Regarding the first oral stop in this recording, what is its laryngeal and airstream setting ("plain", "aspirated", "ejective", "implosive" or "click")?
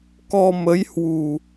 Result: plain